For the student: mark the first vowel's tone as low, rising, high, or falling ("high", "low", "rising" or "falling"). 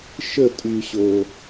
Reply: falling